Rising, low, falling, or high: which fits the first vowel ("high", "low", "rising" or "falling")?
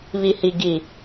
low